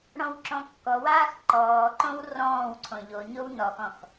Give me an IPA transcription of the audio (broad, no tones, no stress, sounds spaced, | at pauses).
ɽ ɔ̃ w ǁ ɔ̃ kː ɔ w aː x ǃ ɔː ǃ õ w r ɔ̃ː w ǀʰ õ ʎ o ɲ o w n ɔ x ɔ̃ x